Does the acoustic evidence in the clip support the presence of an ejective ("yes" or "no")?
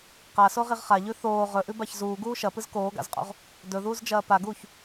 yes